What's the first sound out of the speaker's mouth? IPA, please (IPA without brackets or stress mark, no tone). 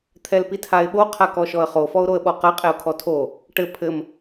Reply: t̪ʰ